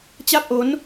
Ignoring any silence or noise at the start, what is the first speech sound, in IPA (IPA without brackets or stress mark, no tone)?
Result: t͡ɕ